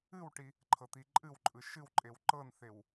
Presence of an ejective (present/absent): present